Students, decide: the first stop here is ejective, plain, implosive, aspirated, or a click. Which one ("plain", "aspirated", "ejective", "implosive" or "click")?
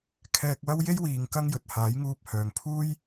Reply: aspirated